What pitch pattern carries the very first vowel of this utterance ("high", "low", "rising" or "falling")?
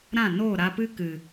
falling